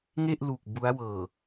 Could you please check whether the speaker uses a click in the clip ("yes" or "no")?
no